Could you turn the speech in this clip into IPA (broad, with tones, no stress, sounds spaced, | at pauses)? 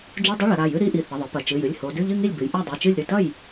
d͡ʒ u˧˥˧ dˤ ɨ˧˥˧ ɭ ɐ˩˧ ɾ a˩˧˩ j ɨ˧˥˧ ɾ i˥˧ ʔ i˩˧˩ θ ɐ˩˧˩ ðˤ ɨ˩˧ p ɐ˩˧˩ t͡ʃ ɨ˩˧˩ j ɨ˩˧˩ lʲ h o˩˧ d ʉ˧˥˧ ʎ ɨ˥˧ ŋ i˥˩ lʲ b ɨ˩˧ j ʔ a˥˩ dˤ ʉ˩˧˩ t͡ʃ ɨ˥˩ lʲ ɾ ʉ˥˩ t ɐ˥˩ j